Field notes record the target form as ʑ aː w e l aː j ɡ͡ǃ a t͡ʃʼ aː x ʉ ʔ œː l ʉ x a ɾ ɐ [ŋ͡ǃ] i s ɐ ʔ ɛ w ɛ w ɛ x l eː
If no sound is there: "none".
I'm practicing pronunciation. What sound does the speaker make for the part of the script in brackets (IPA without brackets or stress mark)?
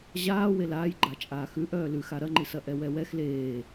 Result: ŋ͡ǃ